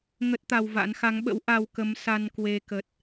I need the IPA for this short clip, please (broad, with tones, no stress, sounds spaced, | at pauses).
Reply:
ŋ ə˦˥ t̚ t̪ a˧ w v a̰˧˥ n x a˨˦ ŋ ɓ ə̰˧˥ w ʔ a˧ w k ə˨˦ m s a˧ n k w e˧ k ə˨˩ t̚